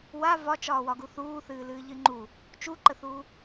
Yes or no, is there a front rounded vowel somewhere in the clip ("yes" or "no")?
no